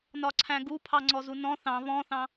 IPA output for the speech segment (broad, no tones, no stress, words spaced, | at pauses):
nɒǀʰæ̃ɡupʰɑ ŋ͡ǀɔzunɔ̃ θɑ̃ βɔ̃θɑ̃